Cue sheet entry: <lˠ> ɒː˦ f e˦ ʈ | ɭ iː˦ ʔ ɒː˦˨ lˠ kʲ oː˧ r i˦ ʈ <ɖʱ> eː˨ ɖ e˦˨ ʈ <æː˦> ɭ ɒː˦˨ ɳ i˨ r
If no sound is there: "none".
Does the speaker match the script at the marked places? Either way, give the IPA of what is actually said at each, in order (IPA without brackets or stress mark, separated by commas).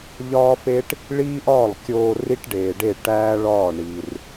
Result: ʎ, ɖ, æː˦